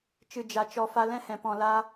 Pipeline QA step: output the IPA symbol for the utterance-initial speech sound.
t͡ʃ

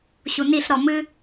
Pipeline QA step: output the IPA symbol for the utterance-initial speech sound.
ɕ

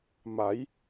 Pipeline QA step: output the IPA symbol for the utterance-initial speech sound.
m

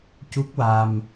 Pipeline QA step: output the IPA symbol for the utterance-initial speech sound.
c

